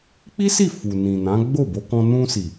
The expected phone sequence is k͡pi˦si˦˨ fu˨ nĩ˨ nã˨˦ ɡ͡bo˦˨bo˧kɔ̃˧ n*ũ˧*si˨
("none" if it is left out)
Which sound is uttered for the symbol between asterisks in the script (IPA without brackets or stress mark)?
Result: ũ˧